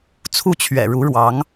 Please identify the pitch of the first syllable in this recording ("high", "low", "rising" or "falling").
falling